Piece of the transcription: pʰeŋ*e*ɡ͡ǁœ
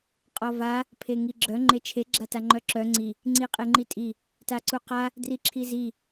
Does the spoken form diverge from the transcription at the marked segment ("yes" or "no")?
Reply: yes